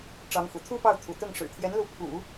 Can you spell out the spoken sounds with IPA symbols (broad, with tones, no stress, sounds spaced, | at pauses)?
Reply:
ʈ͡ʂ ɑ˧˥ ŋ x ṵ˨˩ t̪ʰ u˥ p ɑ˥˩ ʊ̯ t̪ʰ ṵ˨˩ t̪ ʊ˥˩ ŋ ʂ ɻ̩˨˩ t̪ʰ j ɛ˧˥ n l u˧˥ pʰ ṵ˨˩˦